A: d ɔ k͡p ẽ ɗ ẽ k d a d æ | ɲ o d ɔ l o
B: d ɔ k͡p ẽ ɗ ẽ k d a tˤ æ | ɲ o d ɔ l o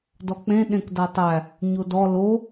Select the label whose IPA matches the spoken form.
B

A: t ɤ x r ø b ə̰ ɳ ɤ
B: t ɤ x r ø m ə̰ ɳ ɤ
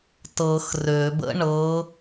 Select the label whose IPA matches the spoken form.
A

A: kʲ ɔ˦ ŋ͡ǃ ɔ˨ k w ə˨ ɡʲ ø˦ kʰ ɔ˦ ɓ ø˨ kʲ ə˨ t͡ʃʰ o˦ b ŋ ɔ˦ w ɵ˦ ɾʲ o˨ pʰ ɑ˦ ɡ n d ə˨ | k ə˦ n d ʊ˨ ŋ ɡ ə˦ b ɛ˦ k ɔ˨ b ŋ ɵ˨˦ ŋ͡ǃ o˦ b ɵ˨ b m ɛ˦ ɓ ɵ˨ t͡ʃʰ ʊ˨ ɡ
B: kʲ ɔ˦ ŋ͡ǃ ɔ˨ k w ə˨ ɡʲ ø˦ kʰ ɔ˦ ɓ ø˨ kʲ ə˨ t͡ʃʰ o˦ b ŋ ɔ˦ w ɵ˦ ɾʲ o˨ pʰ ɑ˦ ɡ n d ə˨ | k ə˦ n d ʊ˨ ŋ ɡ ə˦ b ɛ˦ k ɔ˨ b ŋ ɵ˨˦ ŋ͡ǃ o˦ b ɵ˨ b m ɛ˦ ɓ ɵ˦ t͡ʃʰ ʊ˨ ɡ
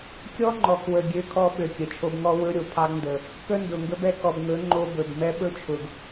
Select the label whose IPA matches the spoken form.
B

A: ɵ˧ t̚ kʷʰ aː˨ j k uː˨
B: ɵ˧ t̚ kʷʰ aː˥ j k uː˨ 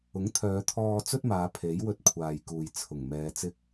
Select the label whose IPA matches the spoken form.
A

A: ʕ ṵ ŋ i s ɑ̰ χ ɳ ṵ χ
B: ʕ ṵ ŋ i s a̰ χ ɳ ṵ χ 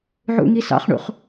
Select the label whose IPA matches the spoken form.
A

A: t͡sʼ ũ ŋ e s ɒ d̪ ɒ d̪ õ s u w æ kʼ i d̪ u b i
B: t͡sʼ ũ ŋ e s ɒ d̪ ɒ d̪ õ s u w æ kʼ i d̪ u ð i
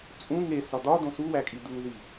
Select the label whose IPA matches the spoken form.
B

